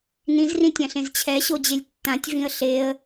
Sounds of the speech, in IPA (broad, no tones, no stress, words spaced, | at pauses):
nĩzrĩtʲãɬẽz t͡ɕʰɛɕod͡ʑelʲ tːãtʲvĩə̯ ɬeə̯